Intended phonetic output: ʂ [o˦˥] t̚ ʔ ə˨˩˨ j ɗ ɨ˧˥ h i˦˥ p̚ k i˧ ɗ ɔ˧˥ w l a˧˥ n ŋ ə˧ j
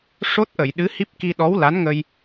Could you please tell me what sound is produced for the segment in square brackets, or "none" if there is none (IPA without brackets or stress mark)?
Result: o˦˥